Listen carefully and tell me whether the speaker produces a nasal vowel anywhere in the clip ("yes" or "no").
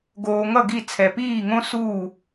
yes